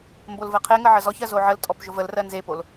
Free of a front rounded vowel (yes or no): yes